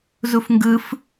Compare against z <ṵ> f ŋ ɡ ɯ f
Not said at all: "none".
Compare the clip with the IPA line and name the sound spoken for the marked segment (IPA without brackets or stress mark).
u